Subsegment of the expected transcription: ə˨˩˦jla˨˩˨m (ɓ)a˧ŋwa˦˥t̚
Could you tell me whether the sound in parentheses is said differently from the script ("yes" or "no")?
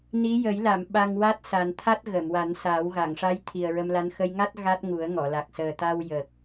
no